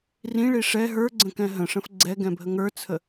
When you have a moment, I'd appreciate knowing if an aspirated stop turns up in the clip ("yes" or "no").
yes